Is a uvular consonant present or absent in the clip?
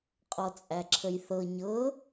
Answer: present